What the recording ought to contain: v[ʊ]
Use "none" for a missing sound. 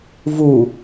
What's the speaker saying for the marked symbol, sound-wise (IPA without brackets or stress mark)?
u